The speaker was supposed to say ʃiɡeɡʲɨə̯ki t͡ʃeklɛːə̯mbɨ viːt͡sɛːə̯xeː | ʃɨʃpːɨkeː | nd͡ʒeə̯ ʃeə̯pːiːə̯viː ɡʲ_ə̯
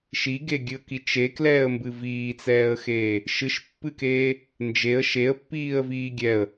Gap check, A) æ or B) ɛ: B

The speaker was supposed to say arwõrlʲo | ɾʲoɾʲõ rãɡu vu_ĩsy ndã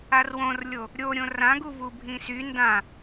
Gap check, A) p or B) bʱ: B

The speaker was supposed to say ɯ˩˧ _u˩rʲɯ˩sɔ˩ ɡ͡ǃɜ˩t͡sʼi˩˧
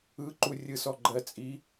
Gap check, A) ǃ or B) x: A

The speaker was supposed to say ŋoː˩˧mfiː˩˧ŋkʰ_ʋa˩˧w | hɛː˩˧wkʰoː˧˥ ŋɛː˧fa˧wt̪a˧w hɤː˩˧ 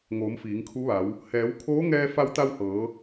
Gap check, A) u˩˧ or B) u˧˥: B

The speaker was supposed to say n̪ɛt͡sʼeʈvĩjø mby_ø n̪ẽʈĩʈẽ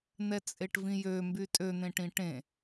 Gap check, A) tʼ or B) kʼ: A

